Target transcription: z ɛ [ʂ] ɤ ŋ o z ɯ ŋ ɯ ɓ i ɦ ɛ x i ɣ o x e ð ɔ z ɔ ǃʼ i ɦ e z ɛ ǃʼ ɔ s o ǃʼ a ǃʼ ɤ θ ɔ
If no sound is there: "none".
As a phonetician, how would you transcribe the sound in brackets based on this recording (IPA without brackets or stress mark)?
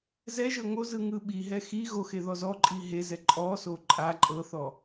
ʒ